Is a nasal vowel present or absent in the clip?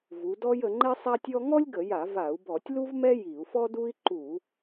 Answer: absent